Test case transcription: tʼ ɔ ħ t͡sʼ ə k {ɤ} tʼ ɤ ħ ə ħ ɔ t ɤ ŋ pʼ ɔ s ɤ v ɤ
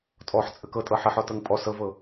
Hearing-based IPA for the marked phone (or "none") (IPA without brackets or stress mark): ɤ